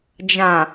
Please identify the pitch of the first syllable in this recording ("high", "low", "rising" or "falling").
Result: low